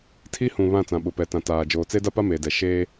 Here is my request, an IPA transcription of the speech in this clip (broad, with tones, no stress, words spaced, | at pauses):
tʰi˦hũ˨ βã˦˨t͡sã˨ɓʊ˨pɛ˨ tã˨taː˨ d͡ʒoː˨t͡se˦da˦pa˦ me˨dɛ˨ ʃeː˦